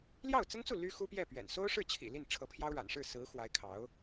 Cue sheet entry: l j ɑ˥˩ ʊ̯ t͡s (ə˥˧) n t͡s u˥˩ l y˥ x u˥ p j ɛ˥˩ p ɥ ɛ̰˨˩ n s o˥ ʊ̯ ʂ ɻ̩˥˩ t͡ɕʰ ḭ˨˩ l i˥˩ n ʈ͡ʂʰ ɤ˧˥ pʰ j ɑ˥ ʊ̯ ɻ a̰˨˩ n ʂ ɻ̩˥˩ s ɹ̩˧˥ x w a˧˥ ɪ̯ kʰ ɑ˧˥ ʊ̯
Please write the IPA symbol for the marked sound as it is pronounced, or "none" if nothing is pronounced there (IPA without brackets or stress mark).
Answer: ə˥